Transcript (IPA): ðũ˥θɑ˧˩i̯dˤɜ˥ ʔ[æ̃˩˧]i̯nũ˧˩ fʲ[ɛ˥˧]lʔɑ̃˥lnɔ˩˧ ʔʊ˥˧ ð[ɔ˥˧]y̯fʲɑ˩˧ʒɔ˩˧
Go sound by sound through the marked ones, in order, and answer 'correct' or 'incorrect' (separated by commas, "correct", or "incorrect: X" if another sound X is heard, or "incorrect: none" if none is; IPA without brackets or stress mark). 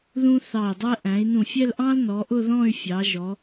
correct, correct, incorrect: ɔ̃˥˧